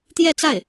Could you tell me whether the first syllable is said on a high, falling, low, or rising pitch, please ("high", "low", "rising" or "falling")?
falling